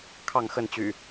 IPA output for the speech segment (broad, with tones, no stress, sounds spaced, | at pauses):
kʰ ɑ˥˨ ŋ x ə˥˨ n t͡ɕ y̰˨˩